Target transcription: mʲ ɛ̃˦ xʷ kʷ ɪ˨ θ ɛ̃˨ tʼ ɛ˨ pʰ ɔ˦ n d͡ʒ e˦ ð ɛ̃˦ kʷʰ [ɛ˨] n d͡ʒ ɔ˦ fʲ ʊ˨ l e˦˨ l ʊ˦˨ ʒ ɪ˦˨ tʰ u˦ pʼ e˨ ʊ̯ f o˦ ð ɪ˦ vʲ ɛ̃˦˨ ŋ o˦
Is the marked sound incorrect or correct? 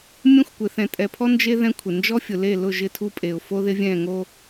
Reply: incorrect